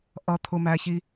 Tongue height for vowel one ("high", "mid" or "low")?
mid